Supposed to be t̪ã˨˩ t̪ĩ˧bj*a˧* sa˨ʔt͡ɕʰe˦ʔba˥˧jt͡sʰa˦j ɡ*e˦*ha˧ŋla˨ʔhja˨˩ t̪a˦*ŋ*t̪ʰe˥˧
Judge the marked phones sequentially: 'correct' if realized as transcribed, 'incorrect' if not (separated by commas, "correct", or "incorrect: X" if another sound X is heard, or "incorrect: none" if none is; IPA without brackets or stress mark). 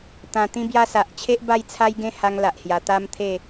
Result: correct, incorrect: ẽ˦, incorrect: m